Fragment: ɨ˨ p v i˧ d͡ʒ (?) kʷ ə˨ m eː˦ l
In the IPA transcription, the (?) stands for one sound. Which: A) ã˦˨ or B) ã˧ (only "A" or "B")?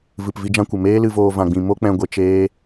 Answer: B